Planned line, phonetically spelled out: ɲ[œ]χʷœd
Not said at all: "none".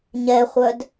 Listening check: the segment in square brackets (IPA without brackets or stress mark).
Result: ɛ